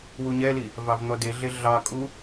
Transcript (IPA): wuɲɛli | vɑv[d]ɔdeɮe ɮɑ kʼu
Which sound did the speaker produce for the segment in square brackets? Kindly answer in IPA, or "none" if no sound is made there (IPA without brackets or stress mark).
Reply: n̪